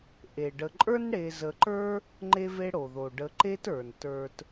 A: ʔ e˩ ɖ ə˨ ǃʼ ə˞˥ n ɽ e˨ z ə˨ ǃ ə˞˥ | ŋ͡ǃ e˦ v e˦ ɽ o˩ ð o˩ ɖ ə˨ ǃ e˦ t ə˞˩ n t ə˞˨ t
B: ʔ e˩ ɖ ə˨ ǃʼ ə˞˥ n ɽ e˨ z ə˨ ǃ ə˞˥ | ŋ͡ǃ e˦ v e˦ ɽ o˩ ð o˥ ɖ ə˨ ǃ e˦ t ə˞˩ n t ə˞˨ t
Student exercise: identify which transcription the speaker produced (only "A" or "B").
A